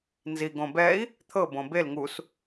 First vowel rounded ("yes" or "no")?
no